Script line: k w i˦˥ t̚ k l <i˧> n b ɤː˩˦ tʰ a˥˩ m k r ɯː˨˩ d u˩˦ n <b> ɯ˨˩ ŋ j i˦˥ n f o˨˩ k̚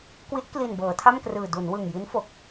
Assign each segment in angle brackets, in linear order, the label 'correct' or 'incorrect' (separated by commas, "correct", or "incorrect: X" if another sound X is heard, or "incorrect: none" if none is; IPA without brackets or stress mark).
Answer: incorrect: i˨˩, incorrect: w